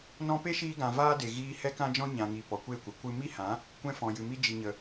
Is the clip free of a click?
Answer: yes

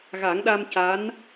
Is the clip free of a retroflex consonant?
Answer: yes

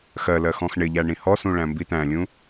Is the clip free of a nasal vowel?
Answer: no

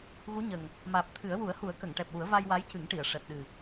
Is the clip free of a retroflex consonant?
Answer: no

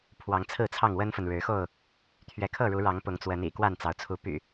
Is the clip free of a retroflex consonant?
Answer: no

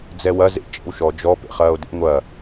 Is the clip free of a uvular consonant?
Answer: no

